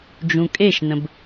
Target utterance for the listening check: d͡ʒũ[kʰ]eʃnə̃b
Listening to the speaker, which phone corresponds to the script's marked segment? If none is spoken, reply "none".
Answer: kʼ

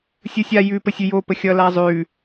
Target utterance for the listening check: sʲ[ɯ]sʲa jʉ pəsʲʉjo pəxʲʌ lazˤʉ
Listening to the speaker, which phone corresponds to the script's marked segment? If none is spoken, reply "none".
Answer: ɯ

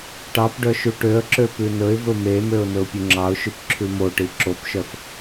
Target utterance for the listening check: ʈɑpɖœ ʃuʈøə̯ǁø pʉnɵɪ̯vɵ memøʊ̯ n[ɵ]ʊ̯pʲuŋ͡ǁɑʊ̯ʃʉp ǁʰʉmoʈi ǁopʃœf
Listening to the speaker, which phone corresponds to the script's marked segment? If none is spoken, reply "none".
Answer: ɵ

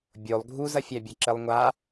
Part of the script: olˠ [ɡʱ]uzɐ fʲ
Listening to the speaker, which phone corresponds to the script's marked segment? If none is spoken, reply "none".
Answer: ɡʱ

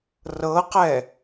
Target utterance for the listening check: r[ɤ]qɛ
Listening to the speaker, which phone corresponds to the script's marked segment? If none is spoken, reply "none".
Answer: ɤ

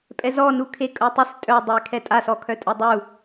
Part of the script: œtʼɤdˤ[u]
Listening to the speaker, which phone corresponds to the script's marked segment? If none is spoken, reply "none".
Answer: u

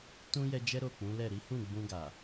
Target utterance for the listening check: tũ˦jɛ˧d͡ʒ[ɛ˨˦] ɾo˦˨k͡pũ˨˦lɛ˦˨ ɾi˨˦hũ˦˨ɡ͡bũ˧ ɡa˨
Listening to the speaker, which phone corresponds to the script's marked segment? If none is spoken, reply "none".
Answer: ɛ˦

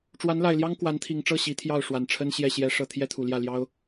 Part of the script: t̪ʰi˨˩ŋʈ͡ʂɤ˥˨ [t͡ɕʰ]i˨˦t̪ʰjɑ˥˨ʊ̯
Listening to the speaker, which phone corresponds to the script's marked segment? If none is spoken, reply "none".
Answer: ɕ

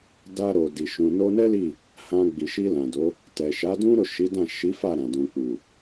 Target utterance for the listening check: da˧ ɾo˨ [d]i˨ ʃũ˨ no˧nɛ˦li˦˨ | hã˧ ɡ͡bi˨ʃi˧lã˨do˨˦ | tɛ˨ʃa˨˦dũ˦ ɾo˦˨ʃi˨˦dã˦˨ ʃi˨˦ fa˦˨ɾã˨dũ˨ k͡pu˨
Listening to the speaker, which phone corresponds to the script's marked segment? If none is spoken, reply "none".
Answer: d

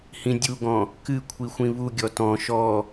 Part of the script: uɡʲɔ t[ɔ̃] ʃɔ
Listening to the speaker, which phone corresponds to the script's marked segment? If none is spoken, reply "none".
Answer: ɔ̃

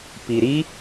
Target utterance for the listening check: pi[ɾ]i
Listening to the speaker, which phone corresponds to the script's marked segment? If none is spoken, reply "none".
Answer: ɾ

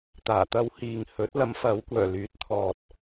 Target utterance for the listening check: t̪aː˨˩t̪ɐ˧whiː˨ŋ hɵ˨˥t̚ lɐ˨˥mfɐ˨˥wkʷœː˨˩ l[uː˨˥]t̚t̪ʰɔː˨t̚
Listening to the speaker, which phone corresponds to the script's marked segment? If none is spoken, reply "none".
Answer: yː˨˥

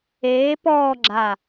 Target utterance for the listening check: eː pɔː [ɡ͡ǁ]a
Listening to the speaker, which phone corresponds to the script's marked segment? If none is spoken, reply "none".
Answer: ɡ͡ǁ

